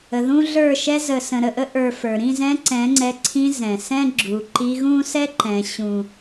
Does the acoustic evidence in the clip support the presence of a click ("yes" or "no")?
yes